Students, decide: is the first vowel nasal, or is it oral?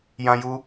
nasal